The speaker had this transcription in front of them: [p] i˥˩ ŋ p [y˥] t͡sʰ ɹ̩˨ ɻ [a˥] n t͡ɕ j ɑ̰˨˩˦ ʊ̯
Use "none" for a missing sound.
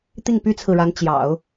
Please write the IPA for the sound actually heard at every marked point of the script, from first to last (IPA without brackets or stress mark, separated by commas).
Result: t̪, y˥, a˧˥